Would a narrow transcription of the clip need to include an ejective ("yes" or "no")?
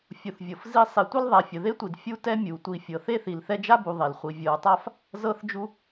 no